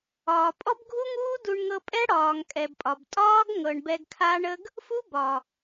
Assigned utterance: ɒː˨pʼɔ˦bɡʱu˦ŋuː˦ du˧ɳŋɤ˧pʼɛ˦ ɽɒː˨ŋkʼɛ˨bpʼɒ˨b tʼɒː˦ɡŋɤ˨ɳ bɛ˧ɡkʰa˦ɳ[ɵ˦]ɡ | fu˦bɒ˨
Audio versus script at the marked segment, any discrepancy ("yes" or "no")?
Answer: yes